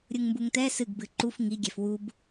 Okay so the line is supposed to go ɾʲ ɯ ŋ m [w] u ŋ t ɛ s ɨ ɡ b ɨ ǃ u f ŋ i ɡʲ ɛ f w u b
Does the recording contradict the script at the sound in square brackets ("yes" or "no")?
yes